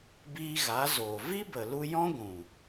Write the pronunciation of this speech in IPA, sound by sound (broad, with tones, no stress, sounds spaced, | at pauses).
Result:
b iː˧ ɣ a˨˦ z oː˨ v i˦ b ə˨ l u˧ j ɔ̃˦ ɡʷ ũ˨